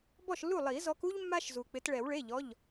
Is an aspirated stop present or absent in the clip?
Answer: absent